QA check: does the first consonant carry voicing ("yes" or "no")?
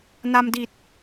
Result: yes